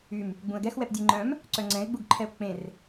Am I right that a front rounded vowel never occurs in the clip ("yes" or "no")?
no